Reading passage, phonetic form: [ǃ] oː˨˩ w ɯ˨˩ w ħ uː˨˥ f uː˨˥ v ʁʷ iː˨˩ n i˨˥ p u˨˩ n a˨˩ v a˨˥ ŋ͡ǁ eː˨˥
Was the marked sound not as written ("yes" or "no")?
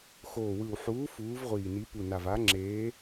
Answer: yes